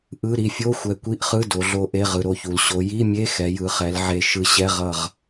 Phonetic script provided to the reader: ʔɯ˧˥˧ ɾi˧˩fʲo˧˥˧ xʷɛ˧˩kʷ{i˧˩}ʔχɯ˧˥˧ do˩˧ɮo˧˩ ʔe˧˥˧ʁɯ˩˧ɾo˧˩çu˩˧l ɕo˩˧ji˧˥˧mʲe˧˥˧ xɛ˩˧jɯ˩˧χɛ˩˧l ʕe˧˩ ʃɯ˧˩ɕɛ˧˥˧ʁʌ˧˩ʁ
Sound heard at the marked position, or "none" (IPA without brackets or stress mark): i˧˥˧